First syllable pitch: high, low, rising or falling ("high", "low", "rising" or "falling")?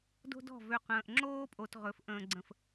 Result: high